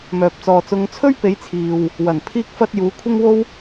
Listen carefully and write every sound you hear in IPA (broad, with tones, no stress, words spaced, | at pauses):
mœː˨p̚t͡sɔː˨t͡sʊ˧ŋ t͡sʰɵ˥ɥpe˨˧jt͡sʰiː˨w | wɐ˨˩npʰiː˥k̚fɐ˥t̚ juː˨˧kʷʰɪ˥ŋwo˥w